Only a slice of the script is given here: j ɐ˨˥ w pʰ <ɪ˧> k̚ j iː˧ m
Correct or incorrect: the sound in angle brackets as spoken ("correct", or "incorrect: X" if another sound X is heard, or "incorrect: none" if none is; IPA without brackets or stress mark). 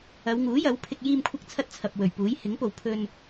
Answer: correct